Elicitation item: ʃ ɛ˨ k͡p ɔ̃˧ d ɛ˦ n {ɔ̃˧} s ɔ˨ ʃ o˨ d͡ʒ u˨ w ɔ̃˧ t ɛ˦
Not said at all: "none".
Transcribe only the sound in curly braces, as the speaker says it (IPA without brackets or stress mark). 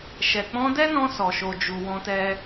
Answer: ɔ̃˧